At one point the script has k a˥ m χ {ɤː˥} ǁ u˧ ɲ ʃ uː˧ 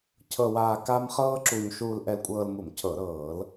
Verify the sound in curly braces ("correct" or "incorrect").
correct